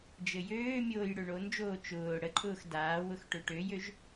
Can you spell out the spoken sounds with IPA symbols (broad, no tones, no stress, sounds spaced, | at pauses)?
d͡ʒ ɘ j øː mʲ oː j ɽ ø ɳ o n d͡ʒ oː t͡ʃ ʊː ɽ ə ǃʼ ʊː x d aː w ʊ x ʈ ø ʈ ø j ø ʒ